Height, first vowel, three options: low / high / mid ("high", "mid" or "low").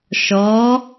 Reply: mid